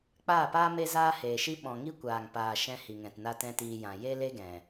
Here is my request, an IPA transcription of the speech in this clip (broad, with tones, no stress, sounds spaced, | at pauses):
k͡p aː˦˨ p aː˦ m e˦ z aː˦ h eː˨ ʃ i˦ ɓ ɔ̃˨ ŋ i˦ kʷ aː˨ ŋ p aː˨ ʃ ɛ̃˧ h i˨ ŋ ɛ̃˨ t n a˧ t ɛ̃˦ t iː˧ j ã˨ j e˦ l e˦ ɡ ɛ̃˨